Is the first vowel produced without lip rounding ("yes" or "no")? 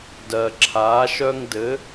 yes